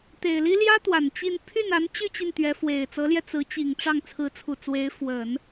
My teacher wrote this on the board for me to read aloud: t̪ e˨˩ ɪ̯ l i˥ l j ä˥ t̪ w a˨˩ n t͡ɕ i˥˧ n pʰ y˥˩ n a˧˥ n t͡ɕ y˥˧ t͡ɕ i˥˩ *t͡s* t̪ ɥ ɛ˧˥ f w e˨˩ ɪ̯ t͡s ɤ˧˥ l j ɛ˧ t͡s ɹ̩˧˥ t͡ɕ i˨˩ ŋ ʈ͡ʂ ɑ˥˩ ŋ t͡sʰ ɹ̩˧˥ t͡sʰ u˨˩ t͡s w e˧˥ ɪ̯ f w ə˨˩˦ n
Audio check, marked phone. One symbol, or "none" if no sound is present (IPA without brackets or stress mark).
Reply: n